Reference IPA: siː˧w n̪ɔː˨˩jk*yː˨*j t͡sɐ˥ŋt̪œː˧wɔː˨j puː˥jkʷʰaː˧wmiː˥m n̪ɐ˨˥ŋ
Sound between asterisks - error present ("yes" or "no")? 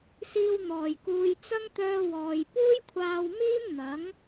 yes